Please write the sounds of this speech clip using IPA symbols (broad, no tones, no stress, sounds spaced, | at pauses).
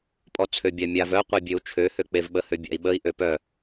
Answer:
pʼ ɔ t͡sʰ ø bʲ a mʲ a v œ qʷ e bʲ ø u̯ t͡ʃʰ ø h ø k͡p e v ɓ ə h ø bʲ a̰ i̯ ɓ ə i̯ ʔ ø p œ